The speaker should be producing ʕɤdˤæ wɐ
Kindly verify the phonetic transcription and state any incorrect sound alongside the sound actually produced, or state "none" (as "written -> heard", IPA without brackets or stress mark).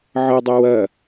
æ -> ɐ